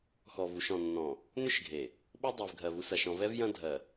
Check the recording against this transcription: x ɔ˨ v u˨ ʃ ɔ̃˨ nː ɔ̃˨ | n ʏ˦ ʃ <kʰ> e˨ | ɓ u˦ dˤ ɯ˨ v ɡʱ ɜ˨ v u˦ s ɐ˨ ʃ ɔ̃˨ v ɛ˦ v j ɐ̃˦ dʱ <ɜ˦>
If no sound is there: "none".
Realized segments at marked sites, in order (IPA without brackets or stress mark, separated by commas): ɡʱ, ɜ˨